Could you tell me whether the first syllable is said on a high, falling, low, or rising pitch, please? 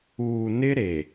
low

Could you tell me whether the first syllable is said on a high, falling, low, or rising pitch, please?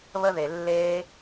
high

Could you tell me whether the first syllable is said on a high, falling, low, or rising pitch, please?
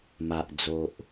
low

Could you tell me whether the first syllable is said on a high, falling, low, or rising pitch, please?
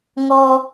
low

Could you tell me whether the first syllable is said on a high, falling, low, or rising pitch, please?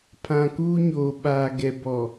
low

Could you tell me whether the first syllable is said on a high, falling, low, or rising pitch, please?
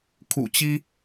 low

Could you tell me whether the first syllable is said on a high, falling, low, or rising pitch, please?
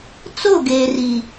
falling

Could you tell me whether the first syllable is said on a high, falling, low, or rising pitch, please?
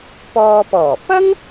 low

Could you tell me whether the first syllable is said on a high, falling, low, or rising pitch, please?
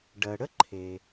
low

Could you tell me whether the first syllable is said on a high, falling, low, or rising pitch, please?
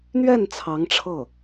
falling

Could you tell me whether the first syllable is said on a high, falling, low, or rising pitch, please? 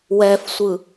low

